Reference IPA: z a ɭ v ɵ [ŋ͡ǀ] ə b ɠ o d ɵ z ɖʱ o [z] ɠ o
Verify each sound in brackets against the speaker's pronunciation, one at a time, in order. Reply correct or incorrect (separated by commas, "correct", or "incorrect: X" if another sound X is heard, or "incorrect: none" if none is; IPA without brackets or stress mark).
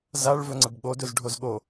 correct, correct